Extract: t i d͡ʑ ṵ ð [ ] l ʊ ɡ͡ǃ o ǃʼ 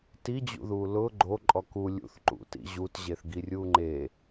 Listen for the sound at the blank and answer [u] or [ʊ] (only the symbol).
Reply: u